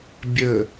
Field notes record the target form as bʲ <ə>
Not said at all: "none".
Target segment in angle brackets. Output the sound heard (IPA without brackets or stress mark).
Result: ə